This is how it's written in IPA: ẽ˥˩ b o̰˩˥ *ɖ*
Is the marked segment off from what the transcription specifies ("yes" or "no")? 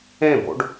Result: no